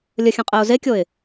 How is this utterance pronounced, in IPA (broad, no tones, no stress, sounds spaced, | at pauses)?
lʲ ə xʲ ə̃ qʼ ɛ ʊ̯ z e kʲ o ɪ̯